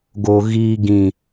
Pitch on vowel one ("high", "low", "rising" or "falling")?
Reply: low